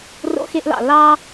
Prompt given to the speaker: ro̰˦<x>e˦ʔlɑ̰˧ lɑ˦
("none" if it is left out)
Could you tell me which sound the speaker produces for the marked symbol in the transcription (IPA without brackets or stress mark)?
x